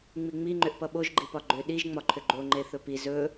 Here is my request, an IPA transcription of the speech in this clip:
ŋ͡miŋ͡miŋ͡ǃʏʔpʌ ɓoʒɡ͡ǃipɒ ɡ͡ǃʏ ɗiʒŋ͡mɒ ǃʰʏɡ͡ǃo ŋ͡ǃeθɵpi zɵ

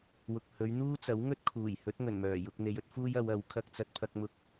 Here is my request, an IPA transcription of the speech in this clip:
wʊ˨k̚hɵ˨˧ɥn̪uː˥t͡sɐ˨˥w ŋɵ˥t̚kʰuː˨˩j hɵ˨˥t̚ŋɵ˨˩nmœː˨˩jʊ˧k̚ n̪e˨˧jɵ˥t̚fuː˥j ɐ˨˧wɐ˨˥w kʰɐ˧k̚t͡sɐ˧t̚pʰɐ˧k̚mʊ˧k̚

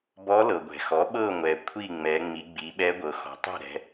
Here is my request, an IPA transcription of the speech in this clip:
bɔ˧˥lɤ˩ɡʷɛ̤˩xɔ˩˥ ɓɤ˥˨ŋʷɛ˩ kʷʰi˥˨ŋ͡mɛ˩˧ ŋ͡mi˩˧ɡ͡bi˩˧ɓɛ˧˥ ɡʷɤ˩˧xɔ̤˩˥tˤɛ̤˥˨ ɾɛ̤˩˧

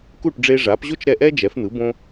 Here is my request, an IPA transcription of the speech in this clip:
ku˥˩ʈ ɖ͡ʐe˧ʐa˩˥pʑo˥t͡ʃ ɾɛ˥˩ʔɛ˥d͡ʒɛ˩˥fn̪ɯ˩˥ bõ˧

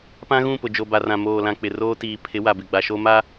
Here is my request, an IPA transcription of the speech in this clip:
pã˦ɣũ˦˨pʊ˨ d͡ʒo˨ba˨rã˨ moː˨lã˨ k͡pɪ˨roː˦ tiː˨ pʰɪ˨˦ wa˨bɪ˨ɡ͡ba˨ ʃo˦ma˦

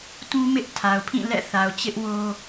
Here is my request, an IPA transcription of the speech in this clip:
tũ˦mɪ˦ʔ tʰa˨ʊ̯pʰĩ˦˨ lɛ̰˦˨ θa˨ʊ̯ t͡ɕɪ˦ʔwo˦

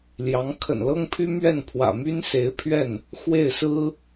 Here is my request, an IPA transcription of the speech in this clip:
ljɑ˧˥ŋ kʰə̰˨˩nlɤ˥ŋpʰy˥ mɥɛ˥˩npʰwä̰˨˩my˥n se˧˥ɪ̯pʰɥɛ˥˩n | xwe˥˩ɪ̯sɹ̩˥

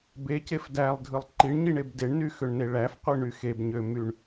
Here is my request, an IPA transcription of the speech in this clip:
becef dælˠdʱɯlˠ ǃiɳɲiɳeb deɳnyxøɳne ɭæfqʷɯɳy xebɲømyɳ

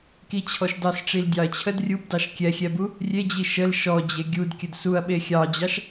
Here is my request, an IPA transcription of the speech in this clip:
kit͡ɕʰɔʃdɑs ʈ͡ʂildʲɑɐ̯t͡ɕʰəd rʲubdɑʃ kʲɛxʲɛbu | rʲed͡ʑi ʃəl ʃɔ d͡ʑeɡʲudkʲəd suɐ̯ɓe xʲɑd͡ʑɑʃ

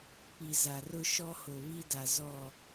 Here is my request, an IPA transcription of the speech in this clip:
pi˨za˨rʊ˦ ʃɔ˦ho˨βi˦da˨ zɔ˦˨

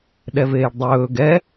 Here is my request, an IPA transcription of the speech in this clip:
ɗɛveːɖdˤɵː ɡɛ

